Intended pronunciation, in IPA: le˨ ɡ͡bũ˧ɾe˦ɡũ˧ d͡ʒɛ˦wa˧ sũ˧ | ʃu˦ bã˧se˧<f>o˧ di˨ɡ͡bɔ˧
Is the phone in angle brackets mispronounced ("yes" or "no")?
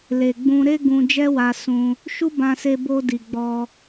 yes